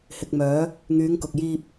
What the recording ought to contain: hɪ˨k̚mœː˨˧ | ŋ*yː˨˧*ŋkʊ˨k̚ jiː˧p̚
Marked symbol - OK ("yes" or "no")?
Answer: yes